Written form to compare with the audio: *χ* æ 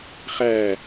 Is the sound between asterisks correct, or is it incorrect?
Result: correct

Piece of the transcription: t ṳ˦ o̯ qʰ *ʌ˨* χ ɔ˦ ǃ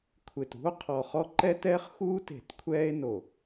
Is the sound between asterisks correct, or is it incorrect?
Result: incorrect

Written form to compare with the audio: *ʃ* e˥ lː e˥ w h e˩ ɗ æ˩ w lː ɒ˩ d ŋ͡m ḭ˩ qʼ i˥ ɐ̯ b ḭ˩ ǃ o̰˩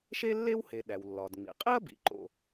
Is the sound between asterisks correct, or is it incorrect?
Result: correct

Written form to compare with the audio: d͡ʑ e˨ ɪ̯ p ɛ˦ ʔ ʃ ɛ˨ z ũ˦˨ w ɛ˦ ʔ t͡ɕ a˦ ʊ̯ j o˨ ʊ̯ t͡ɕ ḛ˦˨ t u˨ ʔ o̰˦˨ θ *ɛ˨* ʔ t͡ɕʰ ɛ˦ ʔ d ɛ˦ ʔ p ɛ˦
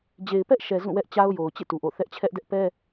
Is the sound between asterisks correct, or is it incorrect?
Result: incorrect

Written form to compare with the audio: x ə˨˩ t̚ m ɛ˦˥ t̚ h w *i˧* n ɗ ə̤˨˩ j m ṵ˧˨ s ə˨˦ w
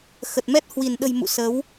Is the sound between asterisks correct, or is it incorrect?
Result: incorrect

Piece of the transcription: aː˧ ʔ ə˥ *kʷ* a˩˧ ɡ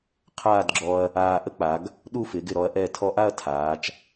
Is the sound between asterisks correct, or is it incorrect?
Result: incorrect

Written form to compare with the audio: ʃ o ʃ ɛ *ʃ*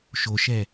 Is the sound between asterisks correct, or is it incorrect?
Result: incorrect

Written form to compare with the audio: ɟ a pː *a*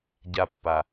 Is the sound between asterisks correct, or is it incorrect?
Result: correct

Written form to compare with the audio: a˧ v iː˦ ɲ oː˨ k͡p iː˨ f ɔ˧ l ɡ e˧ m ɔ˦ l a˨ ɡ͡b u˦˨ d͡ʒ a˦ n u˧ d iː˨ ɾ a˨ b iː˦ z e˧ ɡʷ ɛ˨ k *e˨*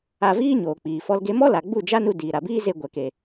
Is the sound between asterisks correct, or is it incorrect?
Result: correct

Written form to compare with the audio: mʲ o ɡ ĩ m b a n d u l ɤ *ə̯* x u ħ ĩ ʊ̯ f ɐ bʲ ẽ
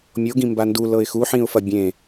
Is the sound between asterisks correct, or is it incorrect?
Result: incorrect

